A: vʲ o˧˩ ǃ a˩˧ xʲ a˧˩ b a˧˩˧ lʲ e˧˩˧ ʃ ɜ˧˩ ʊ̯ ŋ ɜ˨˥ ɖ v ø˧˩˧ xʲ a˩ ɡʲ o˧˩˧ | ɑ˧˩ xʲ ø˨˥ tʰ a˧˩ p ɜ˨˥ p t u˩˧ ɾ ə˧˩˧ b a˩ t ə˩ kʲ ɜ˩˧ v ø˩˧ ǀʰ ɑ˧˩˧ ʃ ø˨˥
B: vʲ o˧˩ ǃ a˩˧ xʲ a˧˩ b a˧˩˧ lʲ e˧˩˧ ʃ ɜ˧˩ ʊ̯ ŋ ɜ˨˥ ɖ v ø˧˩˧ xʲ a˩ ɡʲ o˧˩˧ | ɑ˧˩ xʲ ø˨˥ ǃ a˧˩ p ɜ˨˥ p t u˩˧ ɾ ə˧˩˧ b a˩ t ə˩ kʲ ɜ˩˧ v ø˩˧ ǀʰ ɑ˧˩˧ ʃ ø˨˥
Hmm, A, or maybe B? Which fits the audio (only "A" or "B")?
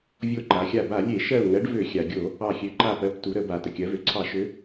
B